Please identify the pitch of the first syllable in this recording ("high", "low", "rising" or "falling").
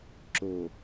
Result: low